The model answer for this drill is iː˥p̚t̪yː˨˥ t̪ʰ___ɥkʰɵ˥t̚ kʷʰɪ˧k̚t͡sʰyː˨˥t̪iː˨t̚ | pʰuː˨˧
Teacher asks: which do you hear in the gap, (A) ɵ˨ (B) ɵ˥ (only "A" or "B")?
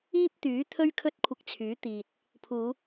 B